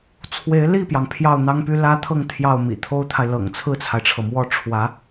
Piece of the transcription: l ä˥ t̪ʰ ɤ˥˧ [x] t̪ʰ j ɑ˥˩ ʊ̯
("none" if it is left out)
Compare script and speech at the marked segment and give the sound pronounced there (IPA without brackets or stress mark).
ŋ